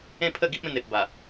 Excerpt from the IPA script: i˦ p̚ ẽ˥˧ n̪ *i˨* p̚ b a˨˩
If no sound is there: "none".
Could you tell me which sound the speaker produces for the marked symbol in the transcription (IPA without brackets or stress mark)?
e˨